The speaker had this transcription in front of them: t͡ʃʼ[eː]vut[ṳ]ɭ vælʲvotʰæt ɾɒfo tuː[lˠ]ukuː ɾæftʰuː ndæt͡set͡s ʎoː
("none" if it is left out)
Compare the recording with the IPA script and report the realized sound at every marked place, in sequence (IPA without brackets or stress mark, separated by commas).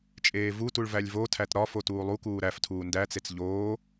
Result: eː, u, lˠ